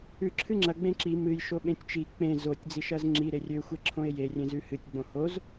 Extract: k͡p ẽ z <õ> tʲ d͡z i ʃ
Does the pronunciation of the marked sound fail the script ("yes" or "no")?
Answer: yes